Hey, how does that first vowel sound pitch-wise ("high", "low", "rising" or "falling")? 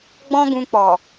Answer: high